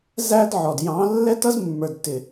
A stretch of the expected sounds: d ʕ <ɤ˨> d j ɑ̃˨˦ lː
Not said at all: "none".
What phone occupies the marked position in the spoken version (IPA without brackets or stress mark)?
ɔ˨